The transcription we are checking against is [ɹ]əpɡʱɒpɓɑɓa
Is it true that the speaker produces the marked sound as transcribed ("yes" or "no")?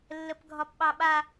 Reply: no